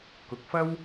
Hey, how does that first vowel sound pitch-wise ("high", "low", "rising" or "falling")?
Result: rising